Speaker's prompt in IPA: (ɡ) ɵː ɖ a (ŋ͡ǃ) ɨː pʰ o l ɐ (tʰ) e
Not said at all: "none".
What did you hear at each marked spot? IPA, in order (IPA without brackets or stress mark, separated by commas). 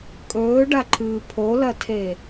kʼ, ǃʰ, tʰ